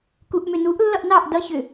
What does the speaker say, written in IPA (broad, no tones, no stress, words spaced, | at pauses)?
kuʔmʏnuʔ lːʌʔnɑʔ dʌ çʏ